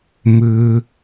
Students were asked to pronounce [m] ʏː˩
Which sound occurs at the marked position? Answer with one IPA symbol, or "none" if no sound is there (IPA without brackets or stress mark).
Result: m